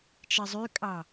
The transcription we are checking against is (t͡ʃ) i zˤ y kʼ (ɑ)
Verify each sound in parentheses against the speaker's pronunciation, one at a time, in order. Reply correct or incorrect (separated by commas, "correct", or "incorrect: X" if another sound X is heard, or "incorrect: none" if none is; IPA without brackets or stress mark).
correct, correct